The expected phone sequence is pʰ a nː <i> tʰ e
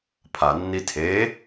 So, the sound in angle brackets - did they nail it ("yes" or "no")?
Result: yes